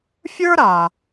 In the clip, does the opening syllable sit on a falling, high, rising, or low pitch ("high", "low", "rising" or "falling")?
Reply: high